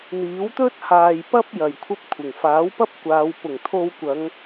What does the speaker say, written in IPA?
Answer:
n̪iː˨˥wt̪ɵ˥t̚haː˨jpɐ˥p̚ jɐ˨jkʷʰɐ˥p̚kʷʰɪ˨˩ŋ faː˨˥wpɐ˥p̚kʷaː˨˧w pʊ˨˩ŋt̪ʰo˧wkʷɐ˨˧ŋ

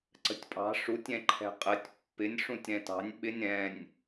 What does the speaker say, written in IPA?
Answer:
ǀə̤tʲpʼɑ̤ ʂutʲɛ̃ǃʰɛ̤ qʼətʲ pːɪnʲ ʂũtʲɾɛ̃tɑ̤nʲ ɓɪnʲ ɾɛ̃nʲ

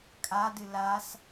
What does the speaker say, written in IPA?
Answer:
kʼadɨ las

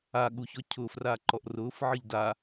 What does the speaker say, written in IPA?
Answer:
aɠuçɔ cʰʊːfraː ǃɔʔrʊːfʕɨʎ da

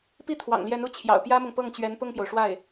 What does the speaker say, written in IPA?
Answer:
pi˥˩ t̪ʰwɑ̰˨˩ŋljɛ˧˥n u˥˩ t͡ɕʰjɑ̰˨˩ʊ̯pjä˥mʊ˨ŋ pɤ˥˩ŋt͡ɕɥɛ˧˥n pʊ˥˩ŋpjo˩ʊ̯ʂwa˥˩ɪ̯

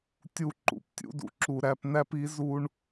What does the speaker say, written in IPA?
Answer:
tʲu˧ǃṵ˨ptʲṵ˦dṵ˨ ǁu˨ɾæ˧pnæ˦p i˨˦ zu˧ɳ

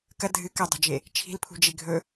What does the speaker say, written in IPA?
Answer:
kɐ dʱɨ kɐdˤo̤d͡ʒe | t͡ʃʰi̤lpʰṳd͡ʒe ɡʱɵ

